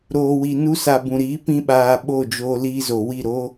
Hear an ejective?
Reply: no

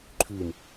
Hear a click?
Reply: yes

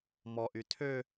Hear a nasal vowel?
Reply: no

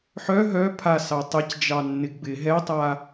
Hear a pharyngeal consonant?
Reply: yes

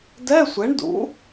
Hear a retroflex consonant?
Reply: yes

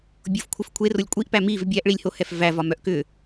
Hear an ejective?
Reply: yes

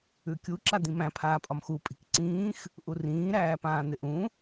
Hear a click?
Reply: yes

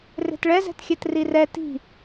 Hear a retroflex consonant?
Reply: yes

